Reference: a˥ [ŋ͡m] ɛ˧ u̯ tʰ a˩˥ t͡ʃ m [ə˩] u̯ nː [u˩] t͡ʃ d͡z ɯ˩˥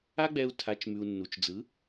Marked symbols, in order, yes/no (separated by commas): no, no, yes